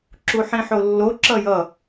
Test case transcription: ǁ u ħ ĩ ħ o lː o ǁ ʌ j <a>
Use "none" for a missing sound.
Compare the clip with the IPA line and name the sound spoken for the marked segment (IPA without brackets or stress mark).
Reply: ʌ